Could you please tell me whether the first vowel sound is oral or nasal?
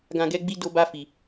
nasal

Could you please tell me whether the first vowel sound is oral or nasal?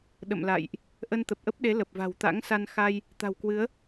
oral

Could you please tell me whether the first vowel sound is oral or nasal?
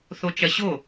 oral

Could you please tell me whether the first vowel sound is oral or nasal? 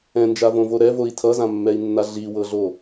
nasal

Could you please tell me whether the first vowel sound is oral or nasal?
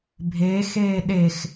oral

